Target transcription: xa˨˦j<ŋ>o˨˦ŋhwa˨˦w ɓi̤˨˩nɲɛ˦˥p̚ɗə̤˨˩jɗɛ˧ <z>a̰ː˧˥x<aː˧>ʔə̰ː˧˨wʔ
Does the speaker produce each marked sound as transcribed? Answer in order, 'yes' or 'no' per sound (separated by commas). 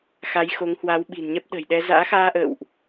no, yes, yes